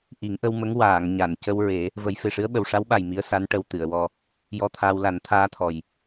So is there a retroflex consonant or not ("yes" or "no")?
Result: yes